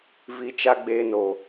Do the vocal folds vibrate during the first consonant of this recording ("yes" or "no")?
yes